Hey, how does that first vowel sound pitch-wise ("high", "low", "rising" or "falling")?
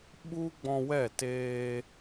high